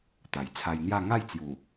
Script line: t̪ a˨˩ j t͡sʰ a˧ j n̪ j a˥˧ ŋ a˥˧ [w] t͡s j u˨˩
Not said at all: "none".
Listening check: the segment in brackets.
j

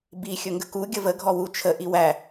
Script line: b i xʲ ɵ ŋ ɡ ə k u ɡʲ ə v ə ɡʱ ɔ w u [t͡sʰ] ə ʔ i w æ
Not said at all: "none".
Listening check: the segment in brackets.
t͡ʃʰ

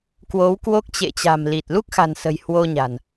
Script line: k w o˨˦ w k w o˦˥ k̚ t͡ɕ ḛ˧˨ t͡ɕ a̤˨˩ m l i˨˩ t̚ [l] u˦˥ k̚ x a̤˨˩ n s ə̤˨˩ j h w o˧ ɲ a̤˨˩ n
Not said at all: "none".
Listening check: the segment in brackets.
l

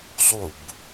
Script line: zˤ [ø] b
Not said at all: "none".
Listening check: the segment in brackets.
u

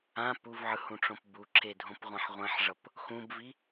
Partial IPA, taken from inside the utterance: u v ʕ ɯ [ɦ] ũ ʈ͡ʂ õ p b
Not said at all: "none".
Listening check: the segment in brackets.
h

